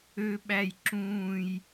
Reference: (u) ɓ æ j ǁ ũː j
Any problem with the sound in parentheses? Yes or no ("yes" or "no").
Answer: yes